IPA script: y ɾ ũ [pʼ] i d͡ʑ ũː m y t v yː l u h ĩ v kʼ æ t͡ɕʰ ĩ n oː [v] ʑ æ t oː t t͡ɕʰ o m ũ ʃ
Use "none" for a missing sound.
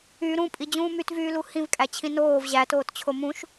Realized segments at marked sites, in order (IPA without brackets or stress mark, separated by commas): pʼ, v